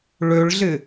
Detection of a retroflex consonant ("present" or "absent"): present